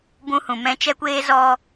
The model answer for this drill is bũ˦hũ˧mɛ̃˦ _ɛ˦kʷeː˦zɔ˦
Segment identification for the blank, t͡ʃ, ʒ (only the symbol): t͡ʃ